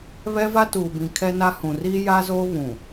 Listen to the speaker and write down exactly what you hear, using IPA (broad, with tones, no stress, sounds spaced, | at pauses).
β ɛ˦ v a˦ t uː˨ b ĩ˨ kʰ ɛ˦ n a˦ h ũ˨ r iː˦ j a˦ z oː˦ β ũ˨